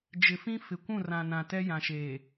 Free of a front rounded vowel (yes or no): yes